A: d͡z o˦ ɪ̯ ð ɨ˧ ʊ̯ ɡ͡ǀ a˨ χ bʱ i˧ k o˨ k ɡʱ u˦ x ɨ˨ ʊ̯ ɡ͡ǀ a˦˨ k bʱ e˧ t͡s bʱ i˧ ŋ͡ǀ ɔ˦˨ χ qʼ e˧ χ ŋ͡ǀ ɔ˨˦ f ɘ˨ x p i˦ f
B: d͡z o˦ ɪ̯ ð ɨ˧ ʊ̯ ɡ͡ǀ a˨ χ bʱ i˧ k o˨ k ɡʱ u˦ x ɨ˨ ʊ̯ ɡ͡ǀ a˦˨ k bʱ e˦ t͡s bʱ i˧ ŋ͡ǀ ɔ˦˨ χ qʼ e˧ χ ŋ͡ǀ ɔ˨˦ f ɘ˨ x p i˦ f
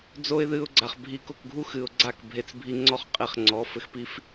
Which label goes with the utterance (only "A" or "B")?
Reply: A